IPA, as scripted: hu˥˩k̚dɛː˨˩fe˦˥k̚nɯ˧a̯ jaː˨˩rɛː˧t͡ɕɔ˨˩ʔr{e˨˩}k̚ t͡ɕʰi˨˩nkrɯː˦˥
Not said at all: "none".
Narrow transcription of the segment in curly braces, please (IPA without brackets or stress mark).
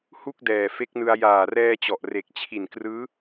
e˨˩